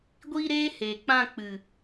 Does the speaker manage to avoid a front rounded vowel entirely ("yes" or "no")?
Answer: yes